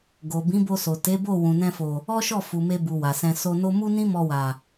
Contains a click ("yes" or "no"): no